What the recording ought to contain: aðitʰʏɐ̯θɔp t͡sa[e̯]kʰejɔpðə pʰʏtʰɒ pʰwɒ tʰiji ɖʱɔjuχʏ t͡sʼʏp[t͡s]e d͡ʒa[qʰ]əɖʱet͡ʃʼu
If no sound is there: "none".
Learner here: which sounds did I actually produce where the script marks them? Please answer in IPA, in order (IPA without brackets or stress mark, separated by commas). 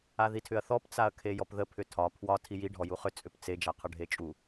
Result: ɐ̯, t͡s, qʰ